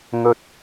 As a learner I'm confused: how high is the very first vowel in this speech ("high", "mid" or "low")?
mid